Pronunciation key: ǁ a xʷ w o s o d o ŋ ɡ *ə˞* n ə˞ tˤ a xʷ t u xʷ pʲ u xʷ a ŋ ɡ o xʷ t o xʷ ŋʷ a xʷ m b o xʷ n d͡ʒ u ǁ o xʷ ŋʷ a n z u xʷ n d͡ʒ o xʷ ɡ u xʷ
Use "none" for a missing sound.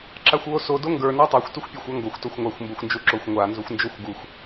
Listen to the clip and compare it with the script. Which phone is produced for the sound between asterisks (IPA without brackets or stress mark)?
ə˞